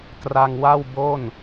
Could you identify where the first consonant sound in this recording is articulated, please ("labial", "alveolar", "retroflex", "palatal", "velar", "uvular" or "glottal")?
velar